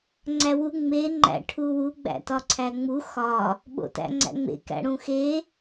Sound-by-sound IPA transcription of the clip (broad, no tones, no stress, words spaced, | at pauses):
ŋ͡ǀæwu ŋ͡me ŋ͡ǃæ̰ʈʰuwu ɡ͡bæ̰tɒǀʰæŋ͡mu xɒ | ɓo̰tæ̰ŋ͡ǀæ̰ŋ͡mḛ kæ̰ɽũxe